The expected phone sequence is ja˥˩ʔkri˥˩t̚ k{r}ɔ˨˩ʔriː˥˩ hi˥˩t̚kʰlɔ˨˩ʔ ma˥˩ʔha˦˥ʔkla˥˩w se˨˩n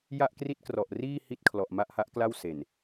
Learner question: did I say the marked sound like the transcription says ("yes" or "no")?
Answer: yes